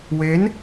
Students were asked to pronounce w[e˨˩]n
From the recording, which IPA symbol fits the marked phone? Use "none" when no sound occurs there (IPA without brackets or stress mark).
e˦˥